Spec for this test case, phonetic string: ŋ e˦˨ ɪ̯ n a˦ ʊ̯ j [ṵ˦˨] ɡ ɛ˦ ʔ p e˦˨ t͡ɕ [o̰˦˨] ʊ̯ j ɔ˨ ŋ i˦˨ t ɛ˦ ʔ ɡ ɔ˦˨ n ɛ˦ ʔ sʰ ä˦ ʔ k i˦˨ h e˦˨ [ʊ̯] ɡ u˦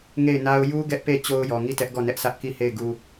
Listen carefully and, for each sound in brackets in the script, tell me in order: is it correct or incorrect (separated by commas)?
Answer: incorrect, incorrect, incorrect